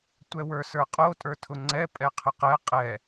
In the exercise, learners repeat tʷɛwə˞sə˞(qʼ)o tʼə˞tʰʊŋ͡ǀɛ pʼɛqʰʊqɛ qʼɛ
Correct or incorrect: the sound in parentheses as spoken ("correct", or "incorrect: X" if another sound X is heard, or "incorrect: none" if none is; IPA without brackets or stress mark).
correct